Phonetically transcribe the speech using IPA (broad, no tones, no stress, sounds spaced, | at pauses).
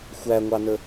xʷ æ ŋʷ ɑ n ə